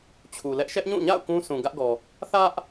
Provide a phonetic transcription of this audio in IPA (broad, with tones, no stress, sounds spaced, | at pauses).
t͡ɕʰ u˨ l ɛ˦ ʔ ʃ ɛ˦ ʔ ɲ ũ˦˨ ɲ a̰˦˨ ʊ̯ k ũ˦ sʰ ũ˨ ɡ ä˦ ʔ ɡ ɔ˨ | θ ä˦ ʔ